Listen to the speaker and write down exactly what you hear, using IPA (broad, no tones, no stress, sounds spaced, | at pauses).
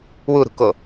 w u ɾ ṳ k o